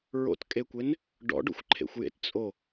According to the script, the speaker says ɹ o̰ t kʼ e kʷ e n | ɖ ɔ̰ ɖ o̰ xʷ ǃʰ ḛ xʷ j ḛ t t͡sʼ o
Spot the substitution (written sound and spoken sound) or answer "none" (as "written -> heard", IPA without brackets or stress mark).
none